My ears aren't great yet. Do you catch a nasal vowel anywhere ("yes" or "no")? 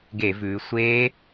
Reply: no